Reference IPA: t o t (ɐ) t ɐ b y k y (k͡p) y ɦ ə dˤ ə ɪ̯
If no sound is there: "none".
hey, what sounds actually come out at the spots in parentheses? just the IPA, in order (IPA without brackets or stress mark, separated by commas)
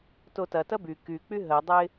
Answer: ɐ, k͡p